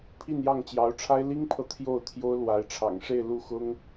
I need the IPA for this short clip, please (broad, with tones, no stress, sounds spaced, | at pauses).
pʰ i˥˧ n j ɑ˥˩ ŋ t͡ɕ j ɑ˧˥ ʊ̯ ʈ͡ʂʰ a˥ ɪ̯ l i˥ ŋ pʰ ɤ˨ t̪ʰ j o˥˩ ʊ̯ t̪ʰ j o˥ ʊ̯ l w a˧˥ ɪ̯ ʈ͡ʂʰ ɑ̰˨˩ ŋ ʂ e˥˧ ɪ̯ l u˥˩ x ʊ˥ ŋ